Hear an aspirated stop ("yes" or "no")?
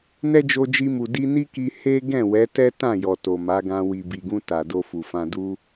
no